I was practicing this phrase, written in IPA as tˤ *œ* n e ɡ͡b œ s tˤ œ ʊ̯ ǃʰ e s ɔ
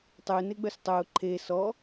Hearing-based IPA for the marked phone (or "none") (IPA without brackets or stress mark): ø